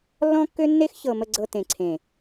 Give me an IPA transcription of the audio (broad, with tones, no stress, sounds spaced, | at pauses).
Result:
lː ɔ̃˦ kː ø˦ nː e˦ x ç ɤ˨ m ə˨ ɡ͡ǀ ɤ˨ t ẽ˨ ǀʰ ẽ˨